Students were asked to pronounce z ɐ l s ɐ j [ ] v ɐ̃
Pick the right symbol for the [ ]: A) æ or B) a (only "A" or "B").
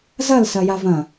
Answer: B